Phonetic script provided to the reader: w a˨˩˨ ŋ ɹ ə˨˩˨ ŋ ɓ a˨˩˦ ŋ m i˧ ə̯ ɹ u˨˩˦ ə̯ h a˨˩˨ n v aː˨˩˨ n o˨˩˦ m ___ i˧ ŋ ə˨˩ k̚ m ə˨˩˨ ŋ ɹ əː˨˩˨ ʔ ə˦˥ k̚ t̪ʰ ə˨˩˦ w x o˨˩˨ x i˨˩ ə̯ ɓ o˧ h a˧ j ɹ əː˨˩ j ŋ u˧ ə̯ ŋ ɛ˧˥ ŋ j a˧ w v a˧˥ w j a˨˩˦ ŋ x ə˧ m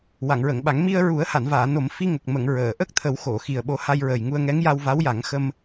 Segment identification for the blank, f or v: f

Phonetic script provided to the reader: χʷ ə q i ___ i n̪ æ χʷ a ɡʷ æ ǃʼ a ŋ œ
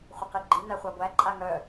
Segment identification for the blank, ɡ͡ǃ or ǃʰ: ɡ͡ǃ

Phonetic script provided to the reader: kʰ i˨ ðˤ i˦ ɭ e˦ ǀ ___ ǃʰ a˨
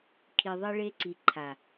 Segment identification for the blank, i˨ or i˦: i˨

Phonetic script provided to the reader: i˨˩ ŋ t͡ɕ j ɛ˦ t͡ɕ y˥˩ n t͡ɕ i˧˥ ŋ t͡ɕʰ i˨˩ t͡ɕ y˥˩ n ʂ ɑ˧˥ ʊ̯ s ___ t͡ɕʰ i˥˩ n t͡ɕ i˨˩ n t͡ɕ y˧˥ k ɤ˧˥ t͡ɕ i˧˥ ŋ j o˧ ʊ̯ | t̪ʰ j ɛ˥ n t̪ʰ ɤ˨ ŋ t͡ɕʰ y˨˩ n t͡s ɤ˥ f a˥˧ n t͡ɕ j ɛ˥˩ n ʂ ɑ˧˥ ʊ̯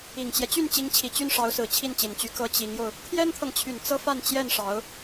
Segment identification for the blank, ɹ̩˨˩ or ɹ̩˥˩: ɹ̩˨˩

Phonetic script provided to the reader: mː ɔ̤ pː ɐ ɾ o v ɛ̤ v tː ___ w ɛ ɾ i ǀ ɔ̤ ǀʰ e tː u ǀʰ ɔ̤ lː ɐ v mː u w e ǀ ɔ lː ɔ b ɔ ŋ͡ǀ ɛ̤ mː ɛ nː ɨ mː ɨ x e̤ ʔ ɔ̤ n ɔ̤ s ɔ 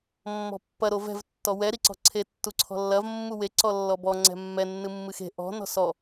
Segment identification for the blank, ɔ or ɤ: ɔ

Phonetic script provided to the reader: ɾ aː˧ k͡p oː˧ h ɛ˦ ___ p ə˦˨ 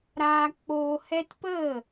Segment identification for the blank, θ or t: t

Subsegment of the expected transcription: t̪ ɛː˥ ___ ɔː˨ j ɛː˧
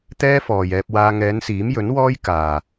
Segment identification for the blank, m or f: f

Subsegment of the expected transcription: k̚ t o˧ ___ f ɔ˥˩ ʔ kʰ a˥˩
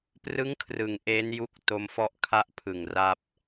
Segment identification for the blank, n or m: m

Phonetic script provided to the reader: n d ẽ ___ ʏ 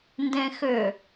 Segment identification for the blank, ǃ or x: x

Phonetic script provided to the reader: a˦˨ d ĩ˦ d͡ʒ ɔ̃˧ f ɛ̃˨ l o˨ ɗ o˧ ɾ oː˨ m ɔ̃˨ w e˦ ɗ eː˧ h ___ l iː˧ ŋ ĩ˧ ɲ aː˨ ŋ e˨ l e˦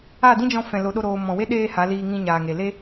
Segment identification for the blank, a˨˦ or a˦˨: a˨˦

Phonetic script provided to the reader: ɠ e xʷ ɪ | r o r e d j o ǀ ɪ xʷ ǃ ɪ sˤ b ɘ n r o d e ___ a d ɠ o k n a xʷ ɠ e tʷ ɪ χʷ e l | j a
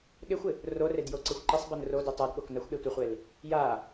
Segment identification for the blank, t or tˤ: tˤ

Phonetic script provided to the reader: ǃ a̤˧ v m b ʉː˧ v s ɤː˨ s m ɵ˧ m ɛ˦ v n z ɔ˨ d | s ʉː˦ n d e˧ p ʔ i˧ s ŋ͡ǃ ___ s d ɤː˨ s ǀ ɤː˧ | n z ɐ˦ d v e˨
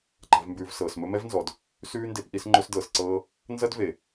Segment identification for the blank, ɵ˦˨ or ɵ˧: ɵ˧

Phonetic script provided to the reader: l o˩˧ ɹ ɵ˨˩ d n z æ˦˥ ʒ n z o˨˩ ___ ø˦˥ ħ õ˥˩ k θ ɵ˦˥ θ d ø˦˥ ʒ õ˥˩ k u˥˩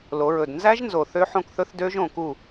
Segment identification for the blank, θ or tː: θ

